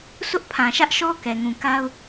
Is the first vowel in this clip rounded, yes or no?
yes